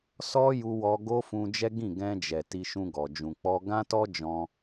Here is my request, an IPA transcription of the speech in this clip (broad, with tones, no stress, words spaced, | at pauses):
sɔ˦ju˧ wɔ˧ɡo˦ fũ˧d͡ʒɛ˦ ɡĩ˦˨ɡɛ̃˧d͡ʒɛ˨ ti˧ʃũ˧ɡɔ˨ d͡ʒũ˨k͡pɔ˧ ɡã˦tɔ˦ d͡ʒɔ̃˧